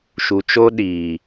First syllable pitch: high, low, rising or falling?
low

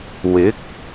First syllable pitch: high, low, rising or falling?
rising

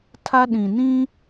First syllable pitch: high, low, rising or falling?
high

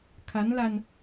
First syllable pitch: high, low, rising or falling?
rising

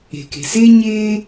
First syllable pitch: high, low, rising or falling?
low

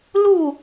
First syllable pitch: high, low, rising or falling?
falling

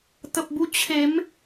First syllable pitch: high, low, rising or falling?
low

